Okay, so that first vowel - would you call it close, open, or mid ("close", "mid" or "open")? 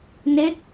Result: mid